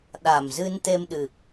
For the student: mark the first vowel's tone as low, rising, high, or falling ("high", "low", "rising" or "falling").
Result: low